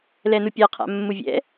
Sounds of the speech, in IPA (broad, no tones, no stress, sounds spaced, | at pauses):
l ɛ n u pʲ a qʰ a̰ mː u vʲ ɛ̰